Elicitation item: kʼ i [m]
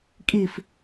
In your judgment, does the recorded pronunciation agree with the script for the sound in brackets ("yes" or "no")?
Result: no